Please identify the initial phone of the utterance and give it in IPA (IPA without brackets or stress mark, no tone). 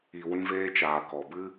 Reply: i